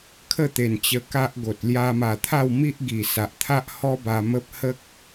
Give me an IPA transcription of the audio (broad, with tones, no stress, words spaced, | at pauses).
kʰə˥˧t̪e˨˩n t͡ɕə˧ka˦ʔɡo˨t̚ lja˧ma˨˩t̪ʰa˥˧wmi˦ʔ ɡi˨˩sa˨ʔt̪ʰa˦ʔ hɔ˦ba˧mə˦p̚ hə˦k̚